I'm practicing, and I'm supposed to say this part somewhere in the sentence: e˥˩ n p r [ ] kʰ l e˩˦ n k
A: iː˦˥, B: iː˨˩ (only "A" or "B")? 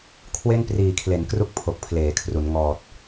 B